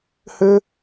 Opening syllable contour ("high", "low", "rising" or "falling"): high